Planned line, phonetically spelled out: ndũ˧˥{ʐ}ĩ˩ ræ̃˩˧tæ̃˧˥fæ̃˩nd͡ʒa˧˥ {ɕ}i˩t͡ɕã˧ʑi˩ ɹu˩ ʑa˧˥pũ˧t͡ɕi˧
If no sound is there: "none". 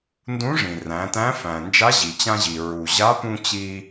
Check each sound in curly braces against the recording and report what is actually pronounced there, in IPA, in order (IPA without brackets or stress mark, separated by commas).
ʐ, ʑ